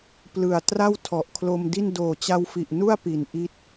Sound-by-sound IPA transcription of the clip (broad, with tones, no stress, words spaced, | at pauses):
plɯ˨˩a̯ tra˥˩wtʰɔ˨˩ʔkʰlo˧mdi˥˩n doː˨˩t͡ɕa˧wfi˨˩ʔ nu˥˩a̯pi˩˦n ʔi˦˥t̚